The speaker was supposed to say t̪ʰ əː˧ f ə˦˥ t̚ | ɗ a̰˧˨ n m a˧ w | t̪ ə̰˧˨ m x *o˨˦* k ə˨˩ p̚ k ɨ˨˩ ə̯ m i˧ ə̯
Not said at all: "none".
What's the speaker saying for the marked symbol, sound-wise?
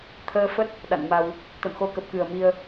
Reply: o˨˦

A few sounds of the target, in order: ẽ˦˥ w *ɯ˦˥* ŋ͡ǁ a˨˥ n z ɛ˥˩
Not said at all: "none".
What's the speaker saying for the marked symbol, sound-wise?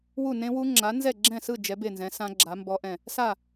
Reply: u˦˥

